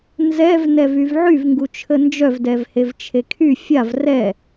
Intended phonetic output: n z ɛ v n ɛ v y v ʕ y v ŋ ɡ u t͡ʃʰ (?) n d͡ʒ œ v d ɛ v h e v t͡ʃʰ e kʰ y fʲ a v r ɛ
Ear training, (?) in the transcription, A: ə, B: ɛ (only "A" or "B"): A